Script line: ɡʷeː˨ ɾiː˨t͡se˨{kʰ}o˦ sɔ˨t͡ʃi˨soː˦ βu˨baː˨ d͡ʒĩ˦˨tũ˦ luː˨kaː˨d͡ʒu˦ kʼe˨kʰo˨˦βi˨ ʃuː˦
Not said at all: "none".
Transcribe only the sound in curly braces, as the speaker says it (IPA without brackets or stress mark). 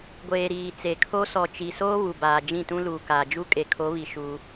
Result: kʰ